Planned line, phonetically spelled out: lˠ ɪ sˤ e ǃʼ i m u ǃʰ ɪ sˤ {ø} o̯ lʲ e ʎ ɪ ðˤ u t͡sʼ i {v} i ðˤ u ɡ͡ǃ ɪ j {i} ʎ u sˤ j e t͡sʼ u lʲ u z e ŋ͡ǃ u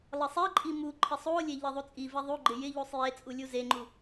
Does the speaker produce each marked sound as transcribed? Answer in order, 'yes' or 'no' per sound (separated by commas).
no, yes, no